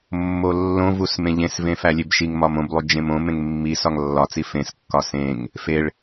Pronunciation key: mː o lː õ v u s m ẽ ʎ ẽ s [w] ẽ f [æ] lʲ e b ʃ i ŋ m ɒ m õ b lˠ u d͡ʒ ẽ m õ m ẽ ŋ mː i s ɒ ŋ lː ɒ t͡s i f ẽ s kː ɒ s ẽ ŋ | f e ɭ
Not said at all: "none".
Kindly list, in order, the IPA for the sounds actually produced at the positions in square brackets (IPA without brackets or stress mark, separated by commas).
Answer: v, æ